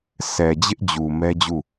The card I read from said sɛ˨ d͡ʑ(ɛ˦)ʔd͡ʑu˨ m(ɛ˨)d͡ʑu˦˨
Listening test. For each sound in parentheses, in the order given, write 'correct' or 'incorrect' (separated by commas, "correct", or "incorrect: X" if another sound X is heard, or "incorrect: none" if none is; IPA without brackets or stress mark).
incorrect: ɪ˦, incorrect: ɛ˦